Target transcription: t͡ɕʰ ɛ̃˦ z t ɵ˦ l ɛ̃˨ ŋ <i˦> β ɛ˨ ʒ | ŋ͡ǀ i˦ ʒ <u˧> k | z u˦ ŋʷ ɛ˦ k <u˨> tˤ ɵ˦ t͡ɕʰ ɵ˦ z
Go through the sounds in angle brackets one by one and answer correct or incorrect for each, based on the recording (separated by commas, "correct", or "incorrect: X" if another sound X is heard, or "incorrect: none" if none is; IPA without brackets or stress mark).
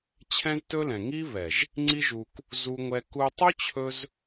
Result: correct, correct, incorrect: u˧